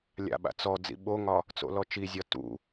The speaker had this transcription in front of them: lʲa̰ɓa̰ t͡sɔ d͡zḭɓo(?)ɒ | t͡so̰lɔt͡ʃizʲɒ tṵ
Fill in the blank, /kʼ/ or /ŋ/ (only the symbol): ŋ